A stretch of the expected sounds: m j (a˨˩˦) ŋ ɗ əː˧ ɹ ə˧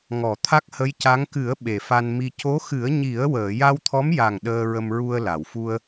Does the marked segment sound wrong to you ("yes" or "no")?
yes